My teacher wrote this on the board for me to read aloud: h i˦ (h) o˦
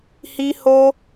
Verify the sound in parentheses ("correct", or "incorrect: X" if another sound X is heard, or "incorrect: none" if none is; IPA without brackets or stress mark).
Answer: correct